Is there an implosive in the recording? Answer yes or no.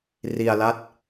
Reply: no